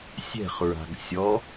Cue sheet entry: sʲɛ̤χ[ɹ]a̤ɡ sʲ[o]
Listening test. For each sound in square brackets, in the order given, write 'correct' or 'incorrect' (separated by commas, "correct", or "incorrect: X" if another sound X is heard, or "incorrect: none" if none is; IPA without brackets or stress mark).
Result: correct, incorrect: ɔ